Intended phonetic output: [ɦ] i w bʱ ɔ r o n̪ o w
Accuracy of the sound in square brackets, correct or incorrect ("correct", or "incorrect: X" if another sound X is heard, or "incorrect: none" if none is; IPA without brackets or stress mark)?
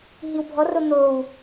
correct